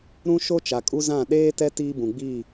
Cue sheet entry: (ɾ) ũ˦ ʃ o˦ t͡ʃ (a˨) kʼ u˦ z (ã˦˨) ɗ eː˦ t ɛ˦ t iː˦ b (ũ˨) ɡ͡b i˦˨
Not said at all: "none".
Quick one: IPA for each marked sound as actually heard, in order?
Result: ɾ, a˨, ã˦˨, ũ˨

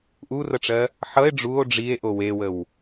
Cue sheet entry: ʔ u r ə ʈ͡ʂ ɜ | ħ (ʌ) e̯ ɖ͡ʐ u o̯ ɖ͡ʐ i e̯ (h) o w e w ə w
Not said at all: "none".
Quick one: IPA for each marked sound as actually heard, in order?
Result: ʌ, ʔ

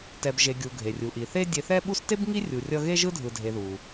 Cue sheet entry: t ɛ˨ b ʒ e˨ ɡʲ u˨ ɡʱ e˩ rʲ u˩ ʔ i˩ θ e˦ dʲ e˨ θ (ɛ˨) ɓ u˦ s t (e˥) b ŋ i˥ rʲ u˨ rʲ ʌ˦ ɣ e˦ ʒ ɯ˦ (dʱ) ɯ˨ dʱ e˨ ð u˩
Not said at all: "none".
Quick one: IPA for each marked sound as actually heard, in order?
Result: ɛ˦, e˥, dʱ

